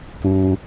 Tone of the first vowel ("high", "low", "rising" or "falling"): low